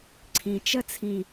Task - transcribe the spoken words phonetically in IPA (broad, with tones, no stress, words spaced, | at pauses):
ǀʰĩ˩ t͡ʃə˥t͡sʰĩ˩